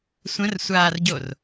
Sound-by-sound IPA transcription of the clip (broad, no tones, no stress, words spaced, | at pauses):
sʷə̃rsʷaːrɟor